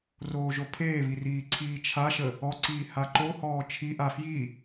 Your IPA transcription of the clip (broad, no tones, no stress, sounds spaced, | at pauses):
r oː ʒ o pʰ eː β i r iː ǀʰ iː t͡ʃʰ a ʃ ə | ɔ ǀ iː h a ǃ o h ɔː t͡ʃʰ i ʔ a f j i